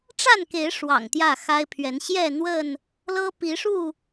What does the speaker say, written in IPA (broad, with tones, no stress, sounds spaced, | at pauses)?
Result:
ʈ͡ʂ a˥˨ n k e˨˦ ɪ̯ ʂ w ɑ̰˨˩ ŋ t̪ j ä˥˨ x a˦ ɪ̯ pʰ ɥ ɛ˨˦ n ɕ j ɛ˥˨ n̪ w ə˥˨ n | l ɤ˦ p i˨˦ ʂ u˥˨